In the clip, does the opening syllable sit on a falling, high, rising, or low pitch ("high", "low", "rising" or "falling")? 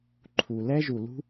low